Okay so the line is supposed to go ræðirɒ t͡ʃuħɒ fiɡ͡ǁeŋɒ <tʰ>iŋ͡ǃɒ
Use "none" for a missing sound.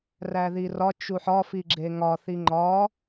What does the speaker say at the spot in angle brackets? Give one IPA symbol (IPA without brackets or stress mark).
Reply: θ